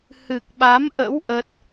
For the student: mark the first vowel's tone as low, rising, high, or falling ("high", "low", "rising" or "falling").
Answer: low